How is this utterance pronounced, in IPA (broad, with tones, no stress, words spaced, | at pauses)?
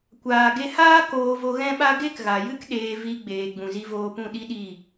kʷaː˨ɡe˧haː˦ koː˧vo˧ɣɛ̃˦ɓa˦ ɡe˦kɣa˨jɨ˦k ɗeː˧ vi˧ ɡ͡beː˨ ɡ͡bũ˨zi˧voː˧pũ˦˨ ɗi˦ɗi˦˨